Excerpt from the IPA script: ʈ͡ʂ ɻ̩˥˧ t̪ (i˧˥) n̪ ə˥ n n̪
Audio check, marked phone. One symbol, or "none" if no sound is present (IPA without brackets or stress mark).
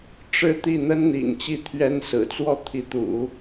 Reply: i˥˩